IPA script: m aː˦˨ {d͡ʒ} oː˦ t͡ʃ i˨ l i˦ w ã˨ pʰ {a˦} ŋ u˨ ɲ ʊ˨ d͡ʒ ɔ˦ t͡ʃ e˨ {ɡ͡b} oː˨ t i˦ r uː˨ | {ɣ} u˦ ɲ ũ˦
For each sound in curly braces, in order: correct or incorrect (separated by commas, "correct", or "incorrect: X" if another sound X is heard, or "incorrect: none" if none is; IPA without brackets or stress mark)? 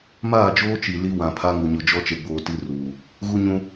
correct, correct, correct, correct